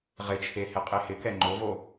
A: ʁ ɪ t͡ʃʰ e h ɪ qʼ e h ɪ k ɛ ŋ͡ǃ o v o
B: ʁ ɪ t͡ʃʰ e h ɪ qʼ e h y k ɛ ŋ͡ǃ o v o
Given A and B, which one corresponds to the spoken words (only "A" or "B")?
A